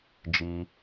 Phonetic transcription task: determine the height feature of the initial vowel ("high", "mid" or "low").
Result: high